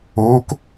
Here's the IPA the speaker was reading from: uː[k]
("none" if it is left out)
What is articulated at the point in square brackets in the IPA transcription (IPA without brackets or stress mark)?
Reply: k